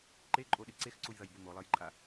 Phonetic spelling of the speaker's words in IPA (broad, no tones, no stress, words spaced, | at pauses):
ǃeǃʼoɗɨ ǀexǀujðɐjbu molˠɐjǃʼa